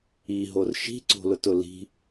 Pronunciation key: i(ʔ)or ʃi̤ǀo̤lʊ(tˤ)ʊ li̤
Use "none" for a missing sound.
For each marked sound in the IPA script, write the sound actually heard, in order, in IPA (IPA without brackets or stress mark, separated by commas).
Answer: ɦ, t